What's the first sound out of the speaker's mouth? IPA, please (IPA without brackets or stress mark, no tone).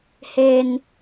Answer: h